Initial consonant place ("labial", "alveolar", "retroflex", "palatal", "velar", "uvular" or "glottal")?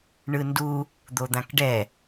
retroflex